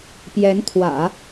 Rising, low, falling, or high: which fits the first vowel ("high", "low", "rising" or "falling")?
rising